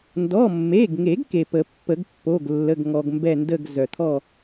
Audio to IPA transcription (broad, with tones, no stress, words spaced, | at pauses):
ndɔ˩˧˩mːe˩˧˩ɡŋe˨˩˦ɡ ke˩pə˨˩˦pːə˨˩˦ɡpːo˩˧˩ɡ lːə˩˧˩ɡŋɔ˩ɡmbɛ˧˩ ndə˧˩ɡ zœ˩t̪ʰɔ˥˨